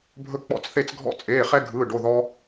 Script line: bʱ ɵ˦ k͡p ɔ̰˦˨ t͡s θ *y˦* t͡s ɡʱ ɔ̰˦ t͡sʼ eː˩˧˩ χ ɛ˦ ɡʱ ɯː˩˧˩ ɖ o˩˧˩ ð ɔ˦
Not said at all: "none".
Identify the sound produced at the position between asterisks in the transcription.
e˦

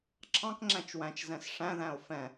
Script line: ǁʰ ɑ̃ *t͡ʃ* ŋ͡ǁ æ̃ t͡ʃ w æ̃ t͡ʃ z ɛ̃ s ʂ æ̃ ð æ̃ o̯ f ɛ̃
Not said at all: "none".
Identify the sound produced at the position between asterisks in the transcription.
k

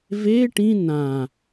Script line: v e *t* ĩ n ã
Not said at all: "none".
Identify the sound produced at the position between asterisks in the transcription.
ʈ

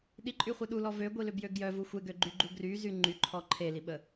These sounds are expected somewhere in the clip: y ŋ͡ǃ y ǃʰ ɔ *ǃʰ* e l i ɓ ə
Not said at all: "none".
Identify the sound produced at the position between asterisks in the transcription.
ǃʰ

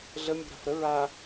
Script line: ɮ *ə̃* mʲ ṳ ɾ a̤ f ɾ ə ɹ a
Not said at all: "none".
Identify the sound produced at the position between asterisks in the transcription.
ə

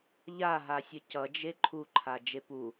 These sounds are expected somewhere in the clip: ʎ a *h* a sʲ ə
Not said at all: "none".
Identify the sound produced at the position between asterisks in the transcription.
ɦ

